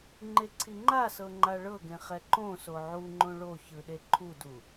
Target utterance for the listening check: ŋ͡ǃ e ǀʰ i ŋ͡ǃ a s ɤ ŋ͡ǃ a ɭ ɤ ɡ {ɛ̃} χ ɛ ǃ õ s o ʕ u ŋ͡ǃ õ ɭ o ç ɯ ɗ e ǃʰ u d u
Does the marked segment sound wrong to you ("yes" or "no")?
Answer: yes